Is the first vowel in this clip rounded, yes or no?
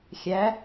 no